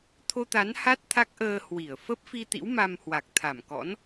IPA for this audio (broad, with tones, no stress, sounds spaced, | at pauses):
t̪ʰ o˧ t̪ a˨˦ n h a˦˥ t̚ t̪ʰ a˦˥ k̚ ʔ əː˧ h w i˧˩ ə̯ f ə˦˥ p̚ f i˧ t̪ ḭ˧˥ w m a˧ m h w a˨˩ k̚ t̪ʰ a˧˩ m k ɔ̰˧˥ n